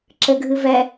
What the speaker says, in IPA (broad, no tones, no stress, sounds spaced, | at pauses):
ǁ ɘ ɡʱ ɨ v ɛ